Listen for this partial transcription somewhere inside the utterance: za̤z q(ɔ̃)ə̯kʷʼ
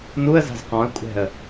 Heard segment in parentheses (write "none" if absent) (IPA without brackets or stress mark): ɔ̃